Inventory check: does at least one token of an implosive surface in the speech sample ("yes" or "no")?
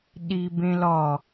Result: yes